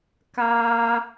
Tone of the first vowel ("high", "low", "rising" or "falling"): high